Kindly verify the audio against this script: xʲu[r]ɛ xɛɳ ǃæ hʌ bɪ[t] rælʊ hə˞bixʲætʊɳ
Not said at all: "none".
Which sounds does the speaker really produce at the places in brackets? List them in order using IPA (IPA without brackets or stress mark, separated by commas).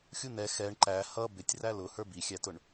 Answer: n, tʲ